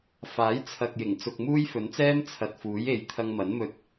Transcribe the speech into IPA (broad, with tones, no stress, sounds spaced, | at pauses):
f aː˨˥ j t͡sʰ ɐ˨ k̚ j ɪ˨˩ ŋ t͡s ʊ˨ k̚ m uː˥ j f ɵ˨˥ n t͡s ɛː˥ m t͡sʰ ɐ˨ t̚ f uː˨˥ j e˧ j t̪ʰ ɐ˧ ŋ m ɐ˨˥ n m ɵ˧ t̚